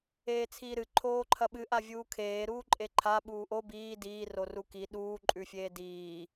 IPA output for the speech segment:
eːt͡sʰiːɾɨ ǃʰoːǃʰɐɓɨ ʔavʲuːkʰeː ɾuːǃʼeǃʰa ɓuːʔo biː diː roruki ɗuː ǃʼʉfʲeːdiː

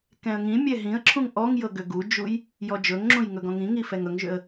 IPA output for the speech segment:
kɛ̃ə̯ŋĩmʲɛ ɦĩə̯ǁʰũŋ ʔɔŋjɤ ɡʏɡud͡ʒuj | jɔd͡ʒɵŋŋ͡ǁũj ŋɵɡɔ̃ŋĩŋi fɛŋɵŋʒʏə̯

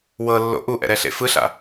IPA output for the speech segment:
wɤlːo̰ ʔuʔɛ̰ɾɛɬḛ fɯɬa̰

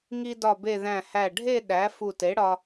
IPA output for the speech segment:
ŋi˧dɒ˧˩be˧˩ ðæ̃˧˩hæ˧˩ɖʱe˥˧ ɗæ˩˥ fu˧˩te˩˥ɽɒ˧

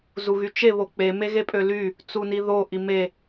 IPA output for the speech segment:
zuɣyt͡ʃe βok͡pe meɣepʼøly | t͡suniðo ʔime

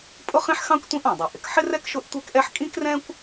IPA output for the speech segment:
pʼʊ˥χĩ˥ħxɑ̃˥kʷ tʷĩ˥ʔɑ̃˩dˤi˩ ʔɪ˩kħɪ˥rɛ˥k ʃʊ˥ʔtʷɛ˥kʔɛ˥ħ kʼĩ˥krɛ̃˥kʷ

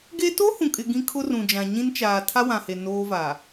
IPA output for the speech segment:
ɡe˦ to˦hũ˨kʼɪ˨ ɡĩ˦kʰʊ˦rũ˨d͡ʒã˨ ɲĩ˦nt͡ʃaː˨ tʰa˦wã˨he˨ noː˦va˨

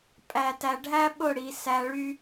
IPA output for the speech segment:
pʼæ˨tæ˨ɖʱæ˦ ɓʊ˦˨ɽi˨ sæ˧ɭy˦

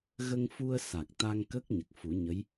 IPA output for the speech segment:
ɣə˧ŋfu˧ə̯ sa˨˩k̚t̪a˧ŋ kə˦˥k̚ ɲə˨˩k̚fu˨˩˦ɲə˧˥j

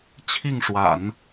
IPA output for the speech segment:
t͡ɕʰi˥˩ŋʂwa̰˨˩˦n

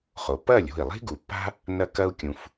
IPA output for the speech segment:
χo˩pːɐː˥˩lʲ o̤˥˩i̯lˠi̤˥ ɡu˩pːa̤˥ | nɐ˧kɐ˧u̯ kʲũ˩f

